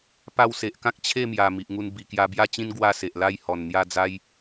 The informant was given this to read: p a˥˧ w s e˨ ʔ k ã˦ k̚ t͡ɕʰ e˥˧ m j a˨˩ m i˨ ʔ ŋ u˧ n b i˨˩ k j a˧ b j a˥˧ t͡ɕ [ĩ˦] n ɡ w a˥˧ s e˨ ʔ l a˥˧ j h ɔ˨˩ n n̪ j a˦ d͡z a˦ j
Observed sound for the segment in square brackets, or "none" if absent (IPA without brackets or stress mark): ĩ˦